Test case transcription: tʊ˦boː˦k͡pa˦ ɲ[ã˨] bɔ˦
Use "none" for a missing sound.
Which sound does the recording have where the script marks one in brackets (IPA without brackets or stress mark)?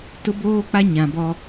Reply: ã˨